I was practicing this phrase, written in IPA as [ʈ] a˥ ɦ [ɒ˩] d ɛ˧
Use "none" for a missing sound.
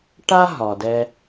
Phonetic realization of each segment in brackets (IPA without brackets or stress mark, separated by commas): ʈ, ɒ˩